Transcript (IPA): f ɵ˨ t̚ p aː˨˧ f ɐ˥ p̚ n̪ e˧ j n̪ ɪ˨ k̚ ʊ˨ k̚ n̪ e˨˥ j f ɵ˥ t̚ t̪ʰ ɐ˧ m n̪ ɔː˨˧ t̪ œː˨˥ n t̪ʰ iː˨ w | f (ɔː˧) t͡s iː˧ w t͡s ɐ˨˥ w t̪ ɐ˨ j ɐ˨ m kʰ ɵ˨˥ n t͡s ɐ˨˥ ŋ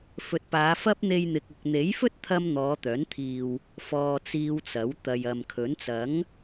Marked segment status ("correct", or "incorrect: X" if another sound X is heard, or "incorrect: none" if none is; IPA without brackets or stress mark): correct